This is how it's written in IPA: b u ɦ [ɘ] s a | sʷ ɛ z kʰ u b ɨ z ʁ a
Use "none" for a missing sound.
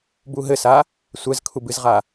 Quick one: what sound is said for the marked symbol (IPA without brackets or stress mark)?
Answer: ɘ